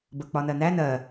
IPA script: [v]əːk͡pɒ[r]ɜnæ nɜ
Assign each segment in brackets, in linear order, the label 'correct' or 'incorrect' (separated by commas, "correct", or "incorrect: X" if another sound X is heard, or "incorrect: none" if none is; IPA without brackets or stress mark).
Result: incorrect: b, incorrect: n